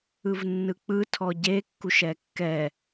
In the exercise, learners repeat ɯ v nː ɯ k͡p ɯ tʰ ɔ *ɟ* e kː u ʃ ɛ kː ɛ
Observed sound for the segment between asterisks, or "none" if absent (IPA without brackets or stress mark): ɟ